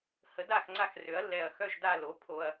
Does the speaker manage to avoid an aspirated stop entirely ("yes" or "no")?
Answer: no